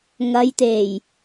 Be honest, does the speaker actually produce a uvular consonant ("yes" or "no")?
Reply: no